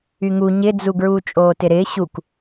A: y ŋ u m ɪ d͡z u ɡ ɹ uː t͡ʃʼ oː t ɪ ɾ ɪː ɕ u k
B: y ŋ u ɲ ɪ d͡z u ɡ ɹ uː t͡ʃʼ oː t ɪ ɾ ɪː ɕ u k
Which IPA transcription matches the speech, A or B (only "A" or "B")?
B